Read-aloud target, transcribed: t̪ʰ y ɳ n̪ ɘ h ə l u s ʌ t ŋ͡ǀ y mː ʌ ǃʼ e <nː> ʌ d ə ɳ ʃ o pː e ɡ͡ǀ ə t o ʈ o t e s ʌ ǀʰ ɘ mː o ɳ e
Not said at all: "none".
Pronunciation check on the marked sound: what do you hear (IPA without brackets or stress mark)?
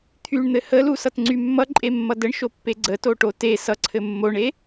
mː